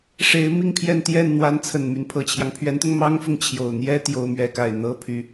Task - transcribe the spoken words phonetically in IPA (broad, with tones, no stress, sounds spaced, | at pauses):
ʂ e˧˥ ɪ̯ m i˥˧ ŋ pʰ j ɛ˥˧ n t̪ j ɛ˥˩ n n̪ w a˧˥ n t͡sʰ ə˨˩ n m y˦ n pʰ ɤ˨˩ t͡ɕʰ j ɑ˦ ŋ pʰ ɥ ɛ˧˥ n t̪ ʊ˧ ŋ m ɑ˥ ŋ f ʊ˨ ŋ t͡ɕʰ j o˨˩ ʊ̯ n̪ j ɛ˥ t̪ j o˥ ʊ̯ m ɥ ɛ˥˧ k a˥˩ ɪ̯ n̪ ɤ˥ pʰ y˧˥